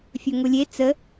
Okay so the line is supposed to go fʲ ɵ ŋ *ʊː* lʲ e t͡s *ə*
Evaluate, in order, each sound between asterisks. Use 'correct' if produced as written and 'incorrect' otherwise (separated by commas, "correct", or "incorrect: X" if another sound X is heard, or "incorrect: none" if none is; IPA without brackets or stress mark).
incorrect: ʊ, correct